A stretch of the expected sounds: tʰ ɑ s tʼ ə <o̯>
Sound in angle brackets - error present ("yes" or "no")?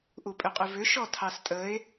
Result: yes